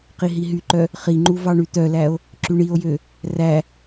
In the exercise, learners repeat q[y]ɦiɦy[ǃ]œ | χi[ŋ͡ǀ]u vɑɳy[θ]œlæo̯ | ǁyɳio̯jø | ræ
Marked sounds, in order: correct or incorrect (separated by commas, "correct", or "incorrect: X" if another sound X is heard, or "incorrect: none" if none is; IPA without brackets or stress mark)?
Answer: incorrect: i, correct, incorrect: ŋ͡ǃ, incorrect: t̪